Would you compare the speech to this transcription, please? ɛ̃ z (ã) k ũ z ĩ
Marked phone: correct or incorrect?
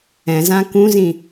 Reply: correct